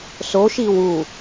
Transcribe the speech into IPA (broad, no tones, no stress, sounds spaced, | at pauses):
s o ʃ i w u